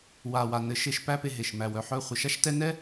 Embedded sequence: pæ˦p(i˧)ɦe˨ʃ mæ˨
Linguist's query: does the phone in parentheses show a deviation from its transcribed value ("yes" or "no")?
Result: yes